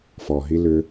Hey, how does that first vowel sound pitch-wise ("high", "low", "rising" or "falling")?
low